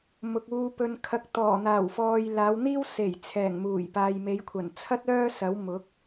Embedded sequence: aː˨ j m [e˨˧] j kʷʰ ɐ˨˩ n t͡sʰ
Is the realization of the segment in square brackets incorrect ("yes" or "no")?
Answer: no